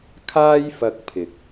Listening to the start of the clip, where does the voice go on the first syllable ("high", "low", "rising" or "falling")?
high